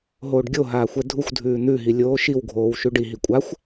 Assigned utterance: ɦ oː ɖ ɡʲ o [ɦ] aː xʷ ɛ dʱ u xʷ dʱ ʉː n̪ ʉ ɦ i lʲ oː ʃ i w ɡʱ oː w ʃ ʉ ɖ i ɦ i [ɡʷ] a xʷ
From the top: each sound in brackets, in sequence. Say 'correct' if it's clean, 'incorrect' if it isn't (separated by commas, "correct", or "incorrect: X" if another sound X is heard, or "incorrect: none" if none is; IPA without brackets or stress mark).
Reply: correct, incorrect: kʷʼ